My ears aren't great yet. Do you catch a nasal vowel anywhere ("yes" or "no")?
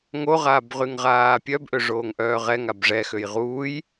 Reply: no